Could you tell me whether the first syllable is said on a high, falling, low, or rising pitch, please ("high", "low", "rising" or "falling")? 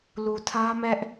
low